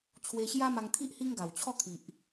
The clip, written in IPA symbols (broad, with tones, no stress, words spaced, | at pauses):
t͡ɕʰwe˧ɕja˦ma˧ŋt̪ʰi˦ʔ hi˦ŋɡa˨˩wt͡ɕʰɔ˥˧ kʰi˨ʔ